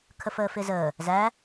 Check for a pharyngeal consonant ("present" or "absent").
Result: absent